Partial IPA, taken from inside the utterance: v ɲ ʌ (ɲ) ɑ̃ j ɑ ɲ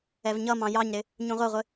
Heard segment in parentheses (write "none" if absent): m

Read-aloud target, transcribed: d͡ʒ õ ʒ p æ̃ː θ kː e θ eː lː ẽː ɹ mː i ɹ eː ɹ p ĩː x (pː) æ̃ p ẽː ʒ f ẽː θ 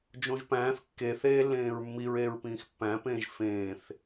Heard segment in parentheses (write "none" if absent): pː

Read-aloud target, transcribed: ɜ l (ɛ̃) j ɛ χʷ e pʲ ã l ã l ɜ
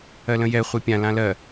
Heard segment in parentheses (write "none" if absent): ə̃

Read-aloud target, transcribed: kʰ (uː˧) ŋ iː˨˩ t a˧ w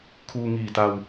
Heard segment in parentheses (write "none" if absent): uː˧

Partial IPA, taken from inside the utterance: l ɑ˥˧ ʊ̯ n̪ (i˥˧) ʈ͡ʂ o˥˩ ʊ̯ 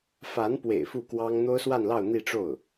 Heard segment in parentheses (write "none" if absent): i˥˧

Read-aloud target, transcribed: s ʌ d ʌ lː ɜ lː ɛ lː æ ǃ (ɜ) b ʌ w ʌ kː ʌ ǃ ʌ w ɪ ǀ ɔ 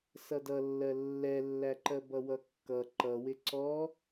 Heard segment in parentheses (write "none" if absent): ɜ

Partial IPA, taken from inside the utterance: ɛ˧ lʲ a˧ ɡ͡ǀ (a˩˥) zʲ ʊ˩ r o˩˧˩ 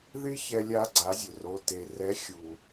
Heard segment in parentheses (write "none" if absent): a˩˥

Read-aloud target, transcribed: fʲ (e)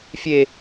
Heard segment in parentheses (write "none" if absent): e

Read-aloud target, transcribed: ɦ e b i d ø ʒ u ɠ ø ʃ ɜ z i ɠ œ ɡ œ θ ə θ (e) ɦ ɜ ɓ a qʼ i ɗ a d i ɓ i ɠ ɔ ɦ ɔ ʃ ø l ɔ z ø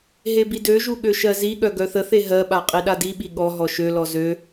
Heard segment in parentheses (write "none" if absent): e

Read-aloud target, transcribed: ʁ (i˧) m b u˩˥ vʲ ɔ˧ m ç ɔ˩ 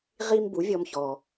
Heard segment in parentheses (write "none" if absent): i˧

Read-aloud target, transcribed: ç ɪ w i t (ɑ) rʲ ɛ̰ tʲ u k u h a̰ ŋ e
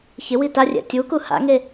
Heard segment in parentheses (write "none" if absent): a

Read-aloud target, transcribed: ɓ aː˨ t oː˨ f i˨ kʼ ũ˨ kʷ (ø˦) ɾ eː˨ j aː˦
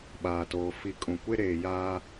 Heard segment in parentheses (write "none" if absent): e˦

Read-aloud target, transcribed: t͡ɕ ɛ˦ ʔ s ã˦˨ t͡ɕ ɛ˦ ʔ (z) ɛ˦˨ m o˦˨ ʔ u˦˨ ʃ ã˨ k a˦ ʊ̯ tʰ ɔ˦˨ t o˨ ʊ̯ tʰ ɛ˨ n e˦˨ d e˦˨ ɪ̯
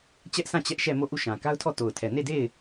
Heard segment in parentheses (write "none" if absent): ʃ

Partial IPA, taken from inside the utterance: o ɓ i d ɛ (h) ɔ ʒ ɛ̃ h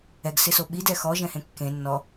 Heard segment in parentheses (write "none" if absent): x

